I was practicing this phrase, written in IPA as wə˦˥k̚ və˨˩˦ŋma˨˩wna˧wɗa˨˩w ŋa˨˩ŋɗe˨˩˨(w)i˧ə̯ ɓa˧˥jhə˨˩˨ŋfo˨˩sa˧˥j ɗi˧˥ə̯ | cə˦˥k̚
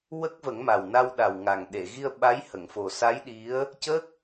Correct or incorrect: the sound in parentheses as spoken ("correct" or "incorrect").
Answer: incorrect